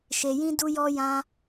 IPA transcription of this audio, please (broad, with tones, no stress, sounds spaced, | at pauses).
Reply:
ʃ e˧ j ĩ˦ d u˦ j ɔ˦ j ã˦